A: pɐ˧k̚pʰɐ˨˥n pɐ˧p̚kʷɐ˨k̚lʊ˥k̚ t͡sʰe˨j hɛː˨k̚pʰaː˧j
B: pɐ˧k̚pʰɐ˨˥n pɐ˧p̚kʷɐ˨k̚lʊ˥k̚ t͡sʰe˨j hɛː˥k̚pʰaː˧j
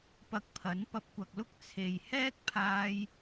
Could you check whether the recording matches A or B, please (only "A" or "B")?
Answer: B